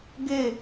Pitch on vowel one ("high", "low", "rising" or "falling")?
falling